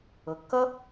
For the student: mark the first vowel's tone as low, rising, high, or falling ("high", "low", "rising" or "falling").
low